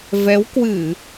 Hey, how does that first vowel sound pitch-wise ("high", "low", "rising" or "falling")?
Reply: rising